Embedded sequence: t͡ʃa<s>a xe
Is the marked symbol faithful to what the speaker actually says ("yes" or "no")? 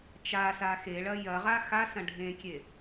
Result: yes